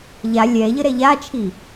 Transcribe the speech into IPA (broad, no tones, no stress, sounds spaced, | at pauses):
ʎ a lʲ ɛ ʎ ə ɾ ɛ ʎ a t͡ʃʰ i